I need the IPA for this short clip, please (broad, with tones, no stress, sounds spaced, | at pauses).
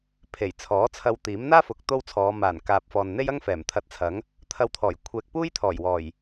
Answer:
pʰ e˨˩ j t͡sʰ ɔː˨˥ t͡sʰ ɐ˧ w t̪ iː˨˥ m n̪ aː˥ f ʊ˨˥ k̚ t̪ o˥ w t͡sʰ ɔː˨˧ m aː˨˩ n k aː˨ p̚ f ɔː˨ n n̪ e˥ j ɐ˥ ŋ f ɛː˨˩ m t̪ʰ ɐ˧ t̚ t͡sʰ ɐ˨˥ ŋ | t̪ʰ ɐ˧ w t̪ʰ ɔː˨˩ j kʷʰ ɛː˨ k̚ p uː˥ j t̪ʰ ɔː˨˩ j w ɔː˨˩ j